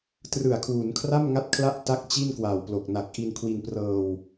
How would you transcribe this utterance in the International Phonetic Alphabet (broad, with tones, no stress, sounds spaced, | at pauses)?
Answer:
t r ɯ˨˩ a̯ kʰ w u˩˦ n kʰ r a˥˩ m ŋ a˦˥ t̚ kʰ l a˦˥ ʔ t a˦˥ k̚ t͡ɕ i˥˩ n k w a˨˩ w p l o˨˩ k̚ n a˨˩ k̚ ʔ i˧ n kʰ w i˧ n p r ɤː˧ w